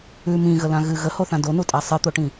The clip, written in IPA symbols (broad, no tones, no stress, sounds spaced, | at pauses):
ʉ m ĩ ɣ ə l ã ɣ ɨ ɣ ə h o θ ã d o n u tʼ a sˤ ɨ t̪ o ʈ ĩ